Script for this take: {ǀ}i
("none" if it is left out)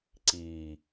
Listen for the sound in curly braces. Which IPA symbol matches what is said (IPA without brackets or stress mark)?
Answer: ǀ